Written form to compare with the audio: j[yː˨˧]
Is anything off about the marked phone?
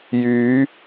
no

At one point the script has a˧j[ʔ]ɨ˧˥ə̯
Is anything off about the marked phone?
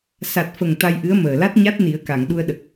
no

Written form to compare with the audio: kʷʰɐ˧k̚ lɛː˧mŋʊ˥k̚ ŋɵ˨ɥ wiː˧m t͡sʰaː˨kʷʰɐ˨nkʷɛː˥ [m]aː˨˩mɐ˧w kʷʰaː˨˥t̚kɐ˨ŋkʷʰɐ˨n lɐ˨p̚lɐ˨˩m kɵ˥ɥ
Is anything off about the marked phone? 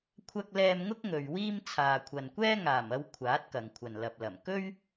yes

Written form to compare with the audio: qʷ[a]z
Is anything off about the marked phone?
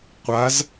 no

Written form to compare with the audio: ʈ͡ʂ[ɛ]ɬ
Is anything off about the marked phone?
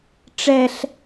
no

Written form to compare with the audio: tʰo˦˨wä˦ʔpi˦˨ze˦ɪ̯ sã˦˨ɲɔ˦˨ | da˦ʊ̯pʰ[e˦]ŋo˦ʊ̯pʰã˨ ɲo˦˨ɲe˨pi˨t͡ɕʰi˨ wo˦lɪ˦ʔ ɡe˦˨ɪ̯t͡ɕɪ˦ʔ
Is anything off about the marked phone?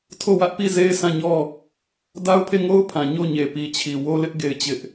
yes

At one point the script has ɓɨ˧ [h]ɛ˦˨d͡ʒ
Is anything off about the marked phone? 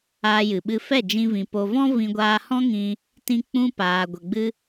yes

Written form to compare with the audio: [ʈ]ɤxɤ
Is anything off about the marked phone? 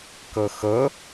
yes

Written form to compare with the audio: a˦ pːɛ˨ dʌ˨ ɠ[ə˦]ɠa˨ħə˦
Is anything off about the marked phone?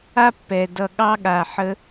yes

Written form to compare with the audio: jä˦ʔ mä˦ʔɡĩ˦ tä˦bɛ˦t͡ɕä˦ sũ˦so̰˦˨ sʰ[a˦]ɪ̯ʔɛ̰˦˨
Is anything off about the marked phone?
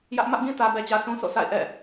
yes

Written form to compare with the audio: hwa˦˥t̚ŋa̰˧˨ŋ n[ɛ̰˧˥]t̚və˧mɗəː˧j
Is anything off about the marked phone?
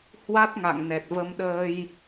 yes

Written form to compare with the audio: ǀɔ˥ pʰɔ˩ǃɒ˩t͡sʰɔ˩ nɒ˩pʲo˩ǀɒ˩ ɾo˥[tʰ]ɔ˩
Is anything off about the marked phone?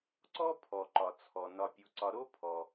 yes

